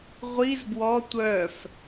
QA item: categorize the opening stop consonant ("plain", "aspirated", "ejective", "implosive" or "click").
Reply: plain